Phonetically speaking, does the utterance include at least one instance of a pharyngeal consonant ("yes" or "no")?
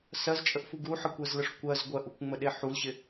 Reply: yes